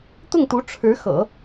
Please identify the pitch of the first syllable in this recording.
falling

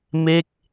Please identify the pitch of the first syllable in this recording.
falling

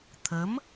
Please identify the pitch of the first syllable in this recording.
rising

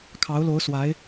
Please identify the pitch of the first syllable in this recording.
rising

